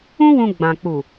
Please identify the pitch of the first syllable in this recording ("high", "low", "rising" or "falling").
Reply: high